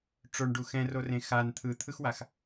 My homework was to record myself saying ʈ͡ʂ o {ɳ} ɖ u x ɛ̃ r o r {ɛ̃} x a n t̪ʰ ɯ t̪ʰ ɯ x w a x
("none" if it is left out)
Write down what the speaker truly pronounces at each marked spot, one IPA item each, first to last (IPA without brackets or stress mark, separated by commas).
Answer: ɳ, ẽ